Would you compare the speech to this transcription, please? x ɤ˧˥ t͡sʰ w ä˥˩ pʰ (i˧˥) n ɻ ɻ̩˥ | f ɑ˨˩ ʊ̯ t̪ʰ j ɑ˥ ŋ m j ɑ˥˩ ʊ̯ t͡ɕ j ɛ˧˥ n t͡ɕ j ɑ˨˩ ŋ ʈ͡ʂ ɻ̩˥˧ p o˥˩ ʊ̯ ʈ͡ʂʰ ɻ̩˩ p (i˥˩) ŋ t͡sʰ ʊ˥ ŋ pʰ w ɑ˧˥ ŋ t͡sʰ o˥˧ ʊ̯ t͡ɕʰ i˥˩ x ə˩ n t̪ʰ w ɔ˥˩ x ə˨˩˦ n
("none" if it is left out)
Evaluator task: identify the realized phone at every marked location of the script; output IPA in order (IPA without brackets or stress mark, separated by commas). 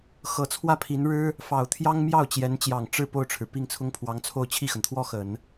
i˧˥, i˥˩